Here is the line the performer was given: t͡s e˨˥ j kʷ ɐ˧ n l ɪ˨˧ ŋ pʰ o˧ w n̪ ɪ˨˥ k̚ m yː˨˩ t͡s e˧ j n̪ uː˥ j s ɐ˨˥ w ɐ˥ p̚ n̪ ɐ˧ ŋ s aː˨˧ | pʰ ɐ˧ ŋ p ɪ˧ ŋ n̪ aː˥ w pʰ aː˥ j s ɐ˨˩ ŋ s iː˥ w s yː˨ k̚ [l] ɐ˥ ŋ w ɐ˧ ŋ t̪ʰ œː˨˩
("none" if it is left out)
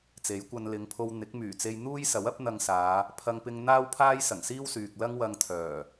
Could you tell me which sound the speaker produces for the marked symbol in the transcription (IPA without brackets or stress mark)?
l